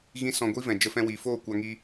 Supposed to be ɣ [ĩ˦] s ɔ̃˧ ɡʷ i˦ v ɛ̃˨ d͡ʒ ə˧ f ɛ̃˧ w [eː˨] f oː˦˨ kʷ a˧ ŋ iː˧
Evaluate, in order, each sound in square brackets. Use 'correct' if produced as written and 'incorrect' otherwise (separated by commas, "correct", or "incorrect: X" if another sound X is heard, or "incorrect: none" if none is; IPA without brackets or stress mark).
correct, incorrect: iː˨